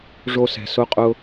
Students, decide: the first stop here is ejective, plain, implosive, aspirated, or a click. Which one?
ejective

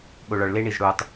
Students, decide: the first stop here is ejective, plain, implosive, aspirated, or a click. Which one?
implosive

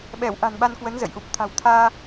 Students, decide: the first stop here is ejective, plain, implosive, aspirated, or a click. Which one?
implosive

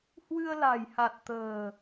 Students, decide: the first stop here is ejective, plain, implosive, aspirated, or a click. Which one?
plain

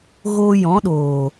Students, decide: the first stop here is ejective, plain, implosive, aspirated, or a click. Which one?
implosive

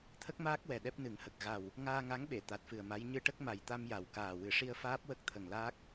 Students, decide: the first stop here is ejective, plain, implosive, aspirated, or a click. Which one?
aspirated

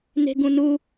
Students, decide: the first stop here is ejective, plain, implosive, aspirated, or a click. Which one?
plain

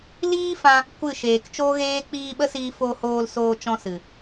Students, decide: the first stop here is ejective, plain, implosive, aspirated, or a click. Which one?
plain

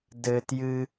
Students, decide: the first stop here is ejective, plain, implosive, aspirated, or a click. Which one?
plain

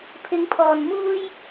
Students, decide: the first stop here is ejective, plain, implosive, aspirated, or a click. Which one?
aspirated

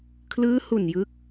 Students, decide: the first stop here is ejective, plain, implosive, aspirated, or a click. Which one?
aspirated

